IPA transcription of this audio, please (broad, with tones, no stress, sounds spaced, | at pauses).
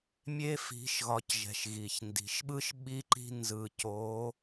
mʲ e˧ f i̤˩˧ ʃ ɣ ɒ˩˧ c ʒ ɛ̤˩ ʃ ɣ i˩ ç n d i̤˩˧ ʃ ɓ ɯ˥ ʃ ɓ i˧ ǃ i̤˧ n z ɯ˩ c o˩˧